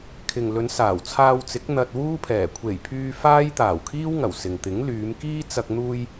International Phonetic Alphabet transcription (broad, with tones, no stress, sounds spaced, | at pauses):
kʰ ɪ˨ ŋ l ɵ˨˧ n s aː˨˩ w t͡sʰ aː˧ w t͡s ɪ˨˥ k̚ n̪ ɐ˧ t̚ w uː˥ pʰ ɛː˨˩ kʷʰ e˨˩ j pʰ yː˧ f aː˥ j t̪ aː˨˩ w kʰ iː˥ w ŋ ɐ˨˩ w s ɪ˨ ŋ t̪ ɪ˨˥ ŋ l yː˨˧ m k iː˥ t͡s ɐ˧ k̚ n̪ uː˧ j